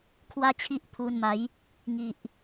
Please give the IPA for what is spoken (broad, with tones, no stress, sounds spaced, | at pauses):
kʰ w a˦ t͡ɕʰ i˦ ʔ pʰ u˧ n m a˨˦ j | ŋ i˨ ʔ